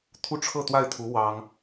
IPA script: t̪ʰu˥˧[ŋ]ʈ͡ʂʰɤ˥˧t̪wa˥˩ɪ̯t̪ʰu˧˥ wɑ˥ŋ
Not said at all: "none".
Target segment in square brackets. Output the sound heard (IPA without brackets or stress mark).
none